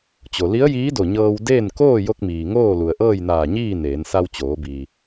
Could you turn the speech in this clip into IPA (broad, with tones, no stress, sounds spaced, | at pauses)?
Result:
t͡ɕ o˩ l i˧˥ ə̯ j iː˧˥ d o˧˩ ɲ ɤː˧ w d eː˥˨ n k oː˥˨ j o˧ k̚ m iː˩ ŋ oː˥˨ l u˩ ə̯ ʔ ɤː˥˨ j n aː˧˩ ɲ iː˥˨ n eː˩˧ n s a˧ w t͡ɕ oː˩˧ b iː˩